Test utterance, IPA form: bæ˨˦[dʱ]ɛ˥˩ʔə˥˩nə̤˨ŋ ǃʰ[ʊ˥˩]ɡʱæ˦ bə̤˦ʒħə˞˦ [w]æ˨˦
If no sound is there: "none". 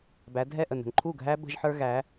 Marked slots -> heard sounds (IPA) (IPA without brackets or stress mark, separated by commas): dʱ, u˥˩, ɣ